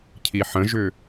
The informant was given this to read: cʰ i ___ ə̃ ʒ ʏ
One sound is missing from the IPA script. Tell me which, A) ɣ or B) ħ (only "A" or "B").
B